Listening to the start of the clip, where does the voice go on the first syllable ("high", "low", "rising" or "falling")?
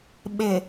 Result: low